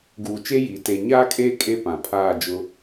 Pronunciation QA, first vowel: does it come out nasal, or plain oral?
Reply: oral